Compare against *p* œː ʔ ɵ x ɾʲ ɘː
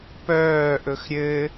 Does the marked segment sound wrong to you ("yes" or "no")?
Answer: no